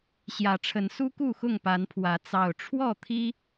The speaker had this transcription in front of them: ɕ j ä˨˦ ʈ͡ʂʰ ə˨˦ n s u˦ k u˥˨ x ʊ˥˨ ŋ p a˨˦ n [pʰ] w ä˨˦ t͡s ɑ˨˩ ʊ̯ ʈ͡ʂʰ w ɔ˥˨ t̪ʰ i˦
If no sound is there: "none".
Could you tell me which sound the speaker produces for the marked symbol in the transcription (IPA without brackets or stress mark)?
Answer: pʰ